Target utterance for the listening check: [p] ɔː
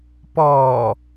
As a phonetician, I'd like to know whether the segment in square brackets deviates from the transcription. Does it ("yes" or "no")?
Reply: no